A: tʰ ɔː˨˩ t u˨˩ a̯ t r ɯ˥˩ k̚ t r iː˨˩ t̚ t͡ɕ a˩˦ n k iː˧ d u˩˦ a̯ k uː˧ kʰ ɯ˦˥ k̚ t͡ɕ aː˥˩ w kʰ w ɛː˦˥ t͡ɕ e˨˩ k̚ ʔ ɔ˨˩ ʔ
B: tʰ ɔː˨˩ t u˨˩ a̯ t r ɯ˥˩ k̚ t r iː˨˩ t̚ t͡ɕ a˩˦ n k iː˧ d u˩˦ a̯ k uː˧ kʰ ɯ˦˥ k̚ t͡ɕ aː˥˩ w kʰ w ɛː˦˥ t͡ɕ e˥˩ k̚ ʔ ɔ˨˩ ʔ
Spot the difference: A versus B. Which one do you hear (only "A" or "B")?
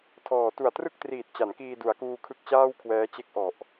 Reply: B